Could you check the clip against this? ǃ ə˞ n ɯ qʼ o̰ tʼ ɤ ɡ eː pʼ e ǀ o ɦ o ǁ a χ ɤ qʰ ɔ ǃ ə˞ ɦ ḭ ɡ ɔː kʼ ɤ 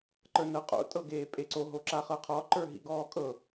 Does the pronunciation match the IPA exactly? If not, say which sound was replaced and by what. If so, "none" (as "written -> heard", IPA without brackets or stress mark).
ɯ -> ɤ